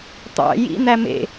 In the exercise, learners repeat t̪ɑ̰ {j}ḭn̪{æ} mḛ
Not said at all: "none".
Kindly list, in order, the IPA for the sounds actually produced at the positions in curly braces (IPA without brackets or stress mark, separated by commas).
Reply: j, æ